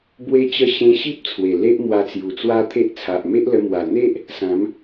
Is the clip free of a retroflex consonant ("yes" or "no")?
yes